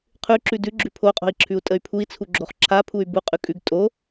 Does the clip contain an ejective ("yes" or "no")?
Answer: yes